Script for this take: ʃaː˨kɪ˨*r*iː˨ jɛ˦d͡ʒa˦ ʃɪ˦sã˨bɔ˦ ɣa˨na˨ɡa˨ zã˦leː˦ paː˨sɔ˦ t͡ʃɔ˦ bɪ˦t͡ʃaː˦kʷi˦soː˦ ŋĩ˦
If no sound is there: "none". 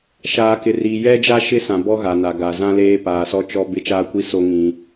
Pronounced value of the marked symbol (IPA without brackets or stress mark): r